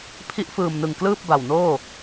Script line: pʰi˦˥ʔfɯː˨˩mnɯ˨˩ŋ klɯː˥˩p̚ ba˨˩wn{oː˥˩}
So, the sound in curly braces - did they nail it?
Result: yes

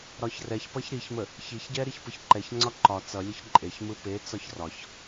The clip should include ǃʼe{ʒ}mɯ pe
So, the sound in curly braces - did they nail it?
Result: no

